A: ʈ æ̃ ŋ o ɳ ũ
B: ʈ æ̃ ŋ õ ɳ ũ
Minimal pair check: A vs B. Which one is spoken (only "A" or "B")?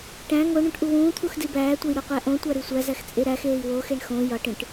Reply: A